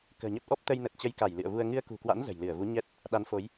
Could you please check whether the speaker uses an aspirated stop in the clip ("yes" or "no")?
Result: no